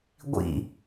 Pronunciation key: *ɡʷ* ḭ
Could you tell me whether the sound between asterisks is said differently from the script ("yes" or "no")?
no